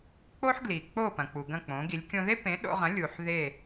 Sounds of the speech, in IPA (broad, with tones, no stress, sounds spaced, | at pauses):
k͡p o˥ ħ ɡ l i˩ k͡p o˥˩ p ɐ̃˩ k͡p u˩ ɡ ɐ̃˥˩ k͡p õ˩˥ ɡ i˩˥ lʲ kʲ õ˧ ð e˥ p ẽ˩˥ ɗ o̰˧ ʁ ɐ̃˩˥ lʲ u˩ ħ ð e˥˩